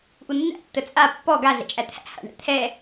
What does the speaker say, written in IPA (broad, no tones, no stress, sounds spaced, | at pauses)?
ʔ u nː æ̰ tː ə t͡sʼ a pː ɔ ɡ a ɮ ɛ̰ t͡ʃʼ æ t̪ʰ æ̰ h a̰ ɳ æ̰ t̪ʰ ɛ